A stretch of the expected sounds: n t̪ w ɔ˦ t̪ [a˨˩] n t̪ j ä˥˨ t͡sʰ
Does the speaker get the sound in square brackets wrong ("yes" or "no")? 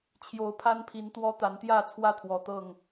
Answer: yes